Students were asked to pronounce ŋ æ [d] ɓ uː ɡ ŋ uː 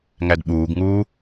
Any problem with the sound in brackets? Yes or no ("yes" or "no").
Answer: no